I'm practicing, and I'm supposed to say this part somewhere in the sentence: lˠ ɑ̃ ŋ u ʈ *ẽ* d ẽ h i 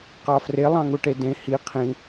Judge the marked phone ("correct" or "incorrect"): incorrect